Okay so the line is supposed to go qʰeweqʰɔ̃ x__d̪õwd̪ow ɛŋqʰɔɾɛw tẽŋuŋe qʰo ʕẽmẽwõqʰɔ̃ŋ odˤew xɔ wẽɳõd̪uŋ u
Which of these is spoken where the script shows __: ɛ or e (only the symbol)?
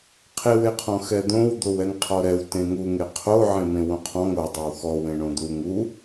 ɛ